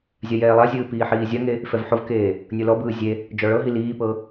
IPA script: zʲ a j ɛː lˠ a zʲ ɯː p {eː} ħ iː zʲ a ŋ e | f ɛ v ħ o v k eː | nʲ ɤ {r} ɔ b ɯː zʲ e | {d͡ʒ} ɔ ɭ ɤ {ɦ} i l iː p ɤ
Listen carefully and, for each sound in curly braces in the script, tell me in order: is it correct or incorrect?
incorrect, incorrect, correct, correct

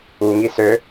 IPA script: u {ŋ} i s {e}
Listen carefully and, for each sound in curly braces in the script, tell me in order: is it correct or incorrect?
correct, incorrect

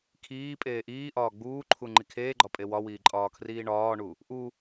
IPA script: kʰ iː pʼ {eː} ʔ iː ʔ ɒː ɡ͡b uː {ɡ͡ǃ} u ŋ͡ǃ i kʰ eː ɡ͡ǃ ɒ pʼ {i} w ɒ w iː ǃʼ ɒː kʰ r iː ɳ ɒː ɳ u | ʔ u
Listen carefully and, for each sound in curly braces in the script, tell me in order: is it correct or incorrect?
correct, incorrect, incorrect

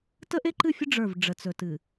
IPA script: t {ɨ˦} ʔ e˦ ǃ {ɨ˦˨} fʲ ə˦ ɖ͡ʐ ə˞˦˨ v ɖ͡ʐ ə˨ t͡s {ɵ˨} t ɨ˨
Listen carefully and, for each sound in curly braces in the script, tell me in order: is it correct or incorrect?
incorrect, correct, correct

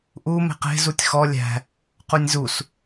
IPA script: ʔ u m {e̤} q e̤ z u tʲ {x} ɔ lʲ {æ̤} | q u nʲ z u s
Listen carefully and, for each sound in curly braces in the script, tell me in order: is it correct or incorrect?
correct, correct, correct

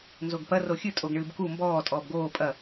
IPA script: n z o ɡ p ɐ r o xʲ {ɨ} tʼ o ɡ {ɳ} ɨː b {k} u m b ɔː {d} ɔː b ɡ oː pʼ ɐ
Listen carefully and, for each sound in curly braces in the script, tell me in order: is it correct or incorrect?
correct, correct, correct, incorrect

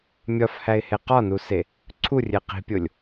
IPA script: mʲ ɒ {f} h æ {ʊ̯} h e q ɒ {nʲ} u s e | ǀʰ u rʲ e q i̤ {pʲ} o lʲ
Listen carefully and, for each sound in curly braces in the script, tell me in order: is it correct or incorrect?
correct, incorrect, incorrect, correct

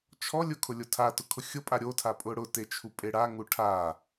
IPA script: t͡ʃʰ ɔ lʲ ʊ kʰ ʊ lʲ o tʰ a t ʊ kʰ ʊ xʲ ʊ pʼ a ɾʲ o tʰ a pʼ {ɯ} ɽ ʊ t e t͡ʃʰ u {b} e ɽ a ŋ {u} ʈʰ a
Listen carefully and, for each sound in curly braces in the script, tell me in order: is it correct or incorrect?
incorrect, incorrect, correct

